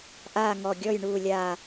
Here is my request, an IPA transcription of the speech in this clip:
ʔ aː˥˨ ŋ ɔ˧˩ ɡʲ ɔ˥˨ j ɳ uː˧˩ lʲ aː˧˩

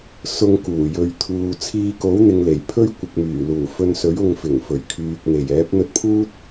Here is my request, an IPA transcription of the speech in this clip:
s ʊ˧ ŋ k uː˨˩ j ɵ˨ ɥ t̪ʰ uː˨ t͡sʰ iː˧ k o˨˥ w n̪ ɪ˨ ŋ l e˨˩ j pʰ ɵ˥ ɥ kʷ ɪ˨ k̚ m yː˨˩ l uː˨˩ f ɵ˧ n s ɵ˨˥ ɥ ʊ˧ ŋ f ɪ˨˩ ŋ f ɵ˨˩ ɥ kʰ yː˨ k̚ n̪ e˨˩ j ɛː˨˥ p̚ n̪ ɵ˧ t̚ pʰ uː˥ t̚

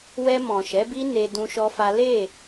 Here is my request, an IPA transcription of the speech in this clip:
w ɛ˧ m ɔ̃˨ ʃ ɛ˨˦ b i˦ n e˧ d ũ˦ ʃ ɔ˦ f a˦ l e˦˨

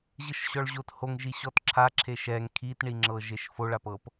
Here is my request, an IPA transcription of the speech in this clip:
ʑ ɯ ʃ ɕ ɔ ɭ ʑ o t h o ŋ ʒ i ɕ ɔ t ǁʰ a ǁʰ e ʃ ɛ ŋ kʰ i t ɳ i ŋ͡ǁ ɤ ʒ e ʃ f o ɭ a p ɤ p

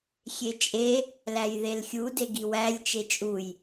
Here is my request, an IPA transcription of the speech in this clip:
xʲ e t͡ʃʼ e | l æ j ð e l xʲ u d e ɡ i w æ lʲ t͡ʃ e t͡ʃʼ u j

